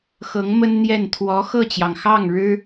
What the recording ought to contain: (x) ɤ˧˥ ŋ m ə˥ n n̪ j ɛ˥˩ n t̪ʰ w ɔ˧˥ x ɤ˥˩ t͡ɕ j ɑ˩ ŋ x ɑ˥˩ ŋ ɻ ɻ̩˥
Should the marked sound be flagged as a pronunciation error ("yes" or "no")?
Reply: no